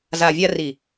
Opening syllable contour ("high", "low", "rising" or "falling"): low